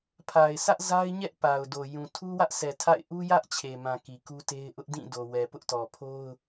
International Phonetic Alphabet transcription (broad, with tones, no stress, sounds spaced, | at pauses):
pʰ a˨ ɪ̯ sʰ ä˦ ʔ z a˦ ɪ̯ ɲ ɛ˦ ʔ p a˨ ʊ̯ d o˨ j ũ˨ tʰ u˦ w ä˦ ʔ sʰ ɛ˨ tʰ a̰˦˨ ɪ̯ ʔ u˦ j ä˦ ʔ t͡ɕʰ e˨ m ã˨ k i˨ k u˦ t e˦ ɪ̯ ʔ ʊ˦ ʔ d ĩ˦˨ d o˨ w ɛ˨ p ʊ˦ ʔ t ɔ˨ pʰ o˦ ʊ̯